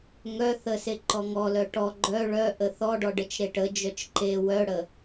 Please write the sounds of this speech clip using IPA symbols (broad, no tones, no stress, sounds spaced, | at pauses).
ŋ œ θ ə s e ǃ ɔ ŋ ɔ l œ ʈ ɔ ɡ͡ǃ œ ɭ œ ʔ ə θ ɔ ɖ ɔ ɖ ə t͡ʃ ɾ e ʈ ə d͡ʒ œ t͡ʃ ǃ e w œ ɽ ə